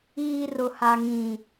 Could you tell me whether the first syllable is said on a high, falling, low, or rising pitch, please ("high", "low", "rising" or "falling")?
high